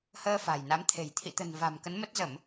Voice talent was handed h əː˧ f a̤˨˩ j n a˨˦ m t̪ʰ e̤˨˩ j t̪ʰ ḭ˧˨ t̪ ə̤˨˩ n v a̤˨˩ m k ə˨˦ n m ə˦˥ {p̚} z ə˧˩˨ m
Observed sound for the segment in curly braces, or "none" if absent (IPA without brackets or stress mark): t̚